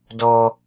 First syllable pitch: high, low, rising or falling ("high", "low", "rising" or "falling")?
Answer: high